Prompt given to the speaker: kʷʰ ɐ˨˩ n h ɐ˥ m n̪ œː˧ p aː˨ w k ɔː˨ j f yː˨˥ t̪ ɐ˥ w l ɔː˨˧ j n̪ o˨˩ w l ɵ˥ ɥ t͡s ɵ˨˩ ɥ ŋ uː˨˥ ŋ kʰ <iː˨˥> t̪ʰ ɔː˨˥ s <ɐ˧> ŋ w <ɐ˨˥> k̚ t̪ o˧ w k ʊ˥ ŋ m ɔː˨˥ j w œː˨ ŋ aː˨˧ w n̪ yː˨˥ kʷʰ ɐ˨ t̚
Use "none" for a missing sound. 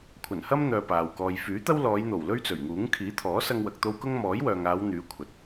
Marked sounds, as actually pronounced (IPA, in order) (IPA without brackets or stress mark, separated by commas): iː˨˥, ɐ˧, ɐ˨